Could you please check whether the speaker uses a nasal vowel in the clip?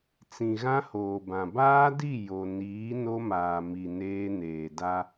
yes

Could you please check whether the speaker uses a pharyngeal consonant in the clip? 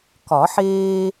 yes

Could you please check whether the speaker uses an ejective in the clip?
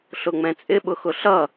yes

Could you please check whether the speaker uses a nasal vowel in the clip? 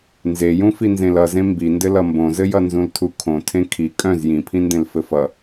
yes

